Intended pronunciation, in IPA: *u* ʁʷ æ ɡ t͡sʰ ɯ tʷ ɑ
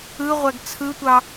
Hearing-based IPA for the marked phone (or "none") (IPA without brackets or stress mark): ɯ